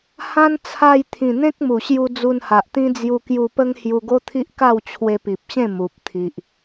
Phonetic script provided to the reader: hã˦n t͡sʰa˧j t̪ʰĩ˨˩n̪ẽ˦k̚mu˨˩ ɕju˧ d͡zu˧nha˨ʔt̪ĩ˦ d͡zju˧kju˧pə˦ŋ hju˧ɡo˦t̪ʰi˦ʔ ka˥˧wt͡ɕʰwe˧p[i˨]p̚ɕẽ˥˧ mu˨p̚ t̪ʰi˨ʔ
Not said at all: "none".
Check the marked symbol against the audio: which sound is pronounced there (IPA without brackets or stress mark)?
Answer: i˨